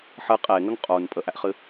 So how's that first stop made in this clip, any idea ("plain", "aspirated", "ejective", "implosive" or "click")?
ejective